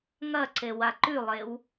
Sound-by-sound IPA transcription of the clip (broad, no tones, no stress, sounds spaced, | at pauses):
ŋ ɐ ǀ e w a ǃ ʉ lˠ e w